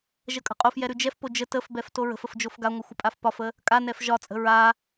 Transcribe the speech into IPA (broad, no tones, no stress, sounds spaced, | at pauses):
ʒ ə kʼ ə̤ qʼ o f j ɛ ɾ ʉ d͡ʒ ɛ f p o d͡ʒ ə t ə f b ɛ f t o ɹ ə̤ f ə f d͡ʒ o f ɡ a ŋʷ ə xʷ ə pʼ a f p ɒ f ə | kʼ a n ɛ f ʒ ɒ t͡sʼ ə̤ ɹ a